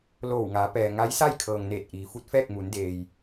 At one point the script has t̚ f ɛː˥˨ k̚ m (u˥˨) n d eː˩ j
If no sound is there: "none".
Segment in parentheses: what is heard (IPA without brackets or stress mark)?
u˩˧